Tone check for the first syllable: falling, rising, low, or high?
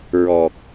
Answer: low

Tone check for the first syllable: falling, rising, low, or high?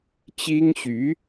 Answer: high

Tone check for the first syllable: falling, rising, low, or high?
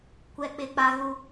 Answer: high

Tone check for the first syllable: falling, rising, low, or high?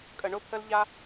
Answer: low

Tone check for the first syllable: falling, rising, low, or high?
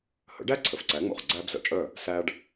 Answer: rising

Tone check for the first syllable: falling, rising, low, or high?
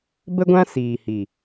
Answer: high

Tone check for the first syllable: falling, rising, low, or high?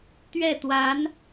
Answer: falling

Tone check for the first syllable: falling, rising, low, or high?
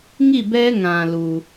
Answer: falling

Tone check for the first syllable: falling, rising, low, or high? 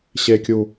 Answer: low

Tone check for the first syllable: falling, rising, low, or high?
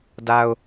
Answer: high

